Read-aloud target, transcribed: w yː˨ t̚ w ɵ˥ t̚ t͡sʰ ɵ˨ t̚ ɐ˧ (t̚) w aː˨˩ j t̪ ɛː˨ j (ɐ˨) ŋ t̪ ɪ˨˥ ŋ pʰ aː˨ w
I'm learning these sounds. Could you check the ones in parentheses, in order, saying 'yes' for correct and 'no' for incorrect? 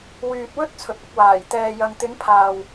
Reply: no, yes

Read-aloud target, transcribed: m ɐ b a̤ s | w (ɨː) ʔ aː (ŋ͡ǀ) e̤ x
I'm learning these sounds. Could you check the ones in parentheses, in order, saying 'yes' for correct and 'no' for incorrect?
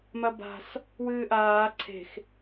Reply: yes, no

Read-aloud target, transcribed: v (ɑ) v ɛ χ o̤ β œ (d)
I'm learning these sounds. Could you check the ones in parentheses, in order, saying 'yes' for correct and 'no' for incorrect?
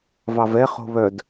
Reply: yes, yes

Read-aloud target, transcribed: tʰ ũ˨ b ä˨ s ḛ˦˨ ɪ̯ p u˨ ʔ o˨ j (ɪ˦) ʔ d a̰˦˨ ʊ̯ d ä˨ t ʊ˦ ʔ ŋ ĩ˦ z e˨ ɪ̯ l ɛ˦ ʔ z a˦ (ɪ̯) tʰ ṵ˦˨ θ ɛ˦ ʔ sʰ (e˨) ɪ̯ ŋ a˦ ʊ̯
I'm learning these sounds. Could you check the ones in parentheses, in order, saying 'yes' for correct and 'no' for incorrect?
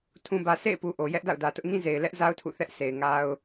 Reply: no, no, yes

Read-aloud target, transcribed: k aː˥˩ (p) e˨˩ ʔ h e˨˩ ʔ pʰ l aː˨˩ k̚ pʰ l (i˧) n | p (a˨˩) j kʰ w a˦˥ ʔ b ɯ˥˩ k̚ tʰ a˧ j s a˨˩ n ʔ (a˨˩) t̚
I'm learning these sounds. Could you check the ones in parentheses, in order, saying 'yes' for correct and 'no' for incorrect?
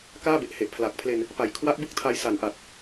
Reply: no, no, yes, yes

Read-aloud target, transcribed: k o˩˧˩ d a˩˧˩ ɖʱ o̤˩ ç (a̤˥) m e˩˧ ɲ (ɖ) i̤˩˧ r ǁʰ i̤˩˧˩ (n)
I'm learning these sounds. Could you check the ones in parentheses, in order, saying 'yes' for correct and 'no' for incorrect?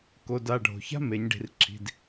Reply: yes, yes, no

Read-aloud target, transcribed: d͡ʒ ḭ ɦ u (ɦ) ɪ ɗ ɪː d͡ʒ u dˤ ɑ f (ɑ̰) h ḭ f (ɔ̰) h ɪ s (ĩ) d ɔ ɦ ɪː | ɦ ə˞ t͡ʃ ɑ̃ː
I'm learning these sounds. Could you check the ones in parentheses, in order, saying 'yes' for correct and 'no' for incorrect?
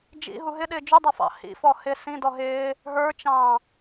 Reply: yes, yes, no, yes

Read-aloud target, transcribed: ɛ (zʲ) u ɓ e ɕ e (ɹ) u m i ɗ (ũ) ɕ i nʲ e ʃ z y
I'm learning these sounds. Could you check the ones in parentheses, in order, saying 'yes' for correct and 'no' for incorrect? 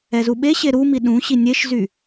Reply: no, no, yes

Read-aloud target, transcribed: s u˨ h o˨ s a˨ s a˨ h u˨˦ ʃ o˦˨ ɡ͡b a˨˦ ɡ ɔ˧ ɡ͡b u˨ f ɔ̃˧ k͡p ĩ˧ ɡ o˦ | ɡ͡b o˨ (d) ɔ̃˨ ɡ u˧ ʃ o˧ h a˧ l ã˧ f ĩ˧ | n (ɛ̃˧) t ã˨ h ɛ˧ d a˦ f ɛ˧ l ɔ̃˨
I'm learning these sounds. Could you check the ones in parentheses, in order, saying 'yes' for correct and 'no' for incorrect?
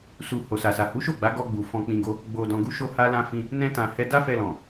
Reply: yes, yes

